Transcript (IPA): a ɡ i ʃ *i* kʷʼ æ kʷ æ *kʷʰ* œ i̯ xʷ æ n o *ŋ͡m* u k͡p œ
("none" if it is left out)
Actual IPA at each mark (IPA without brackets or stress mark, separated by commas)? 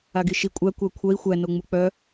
i, kʷʰ, ŋ͡m